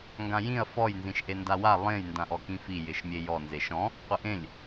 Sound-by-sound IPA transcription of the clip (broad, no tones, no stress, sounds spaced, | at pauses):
ŋ ɡ ã j ĩ ɐ̯ f ɔ j n z ĩ ʃ ʔ e n d a w a lˠ ẽ j n d ã ʔ ɔ k ĩ f i j ɪ ʃ mʲ e j ɔ n z e ʃ ɔ̃ | qʷ ɪ ʔ ẽ lʲ